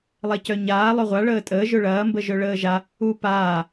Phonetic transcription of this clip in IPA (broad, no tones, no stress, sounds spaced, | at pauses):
lˠ ɛ c œ ɲ aː lˠ œ ʁʷ a ɭ əː tʼ əː ʒ ɵ ɭ ɐː m b ə ʒ œ ɭ əː ʒ a | u p aː